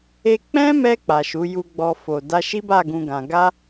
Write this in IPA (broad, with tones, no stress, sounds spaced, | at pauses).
e˧ k͡p ɛ̃˦ m ɛ˧ k͡p a˨ ʃ u˨˦ j u˧ ɡ͡b ɔ˧ f o˨ d a˧ ʃ i˦ b a˦˨ ɡ ũ˧ ɡ ã˧ ɡ a˦